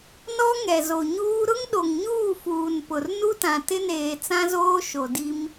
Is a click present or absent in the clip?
absent